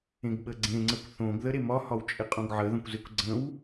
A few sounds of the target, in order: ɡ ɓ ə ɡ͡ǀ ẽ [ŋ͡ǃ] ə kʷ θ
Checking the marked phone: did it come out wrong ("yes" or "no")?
yes